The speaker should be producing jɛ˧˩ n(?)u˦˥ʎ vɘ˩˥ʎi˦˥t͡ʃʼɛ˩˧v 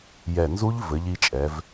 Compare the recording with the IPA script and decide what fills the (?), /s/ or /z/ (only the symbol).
z